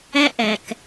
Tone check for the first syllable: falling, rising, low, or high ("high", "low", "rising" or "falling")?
high